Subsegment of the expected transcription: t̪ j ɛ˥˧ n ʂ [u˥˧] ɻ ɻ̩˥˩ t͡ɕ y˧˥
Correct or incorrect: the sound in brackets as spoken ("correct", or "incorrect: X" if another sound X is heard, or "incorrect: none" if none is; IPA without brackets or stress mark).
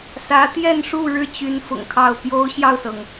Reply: correct